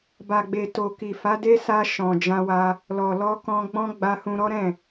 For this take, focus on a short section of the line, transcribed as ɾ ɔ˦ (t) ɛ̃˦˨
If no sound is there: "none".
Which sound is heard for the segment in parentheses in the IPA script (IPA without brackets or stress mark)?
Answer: ɾ